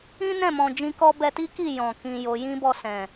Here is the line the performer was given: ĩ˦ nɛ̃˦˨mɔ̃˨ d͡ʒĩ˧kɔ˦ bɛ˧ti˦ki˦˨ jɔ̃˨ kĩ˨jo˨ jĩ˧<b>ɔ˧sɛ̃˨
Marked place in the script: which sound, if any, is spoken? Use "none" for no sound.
b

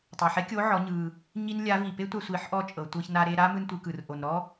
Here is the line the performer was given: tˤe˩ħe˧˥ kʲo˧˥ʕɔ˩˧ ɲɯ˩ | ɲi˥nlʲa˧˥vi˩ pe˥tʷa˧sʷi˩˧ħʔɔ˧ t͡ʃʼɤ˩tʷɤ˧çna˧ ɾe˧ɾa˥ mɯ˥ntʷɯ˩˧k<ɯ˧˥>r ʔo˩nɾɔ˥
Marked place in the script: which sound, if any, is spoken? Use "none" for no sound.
ɯ˩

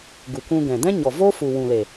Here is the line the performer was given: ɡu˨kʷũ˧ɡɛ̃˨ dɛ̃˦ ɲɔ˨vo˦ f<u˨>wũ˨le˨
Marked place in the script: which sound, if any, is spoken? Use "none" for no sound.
u˨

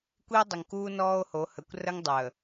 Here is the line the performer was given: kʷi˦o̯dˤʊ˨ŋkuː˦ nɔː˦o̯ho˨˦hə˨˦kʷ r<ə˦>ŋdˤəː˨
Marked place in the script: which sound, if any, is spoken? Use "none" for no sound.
ə˦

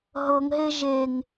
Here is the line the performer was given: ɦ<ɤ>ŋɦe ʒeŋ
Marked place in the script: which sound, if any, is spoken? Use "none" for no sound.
ɤ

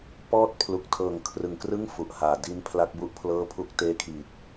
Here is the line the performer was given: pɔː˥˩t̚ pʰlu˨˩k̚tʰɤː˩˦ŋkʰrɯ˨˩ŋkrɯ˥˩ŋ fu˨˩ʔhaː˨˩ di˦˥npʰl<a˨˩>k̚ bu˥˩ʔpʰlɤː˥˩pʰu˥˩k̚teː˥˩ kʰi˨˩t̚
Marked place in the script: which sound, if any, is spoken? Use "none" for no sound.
a˦˥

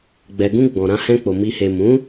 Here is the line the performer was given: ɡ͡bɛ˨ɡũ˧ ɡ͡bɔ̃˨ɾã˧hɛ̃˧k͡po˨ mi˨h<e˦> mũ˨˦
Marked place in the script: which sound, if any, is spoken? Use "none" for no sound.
e˨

